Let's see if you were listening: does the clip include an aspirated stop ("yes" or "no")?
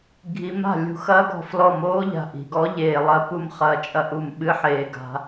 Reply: no